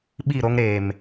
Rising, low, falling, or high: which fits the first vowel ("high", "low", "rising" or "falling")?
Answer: falling